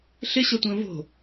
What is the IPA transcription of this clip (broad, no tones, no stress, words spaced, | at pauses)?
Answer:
ɬɪɕʌtʷə̃ː vo̤